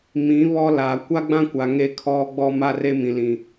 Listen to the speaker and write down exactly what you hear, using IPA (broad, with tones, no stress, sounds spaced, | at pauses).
m ĩ˨˦ β ɔ˦ l aː˨ kʷ a˦ ɡ͡b ã˦ kʷ a˨ ŋ e˦ kʰ ɔ˦ ɡ͡b ɔ˦ m a˦ r e˦ m ĩ˨ l ĩ˨